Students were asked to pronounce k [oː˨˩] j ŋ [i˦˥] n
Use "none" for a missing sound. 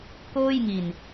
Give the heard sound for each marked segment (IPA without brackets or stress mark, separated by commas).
oː˥˩, i˨˩